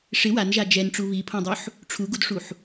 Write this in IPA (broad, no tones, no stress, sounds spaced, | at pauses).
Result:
ʂ ɪ w a n ʒ a d͡ʒ ɛ n ʈ͡ʂ u β i pʰ õ dˤ o ħ | ʈ͡ʂʰ u ɡ u d ʂ u ħ